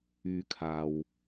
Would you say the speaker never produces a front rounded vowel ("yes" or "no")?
no